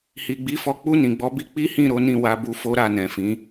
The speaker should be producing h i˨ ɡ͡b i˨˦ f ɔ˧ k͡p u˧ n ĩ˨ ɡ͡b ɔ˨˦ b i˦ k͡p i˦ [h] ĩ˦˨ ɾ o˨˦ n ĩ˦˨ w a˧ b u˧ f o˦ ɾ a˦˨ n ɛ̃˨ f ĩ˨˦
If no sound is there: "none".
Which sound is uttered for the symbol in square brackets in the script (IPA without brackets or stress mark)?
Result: h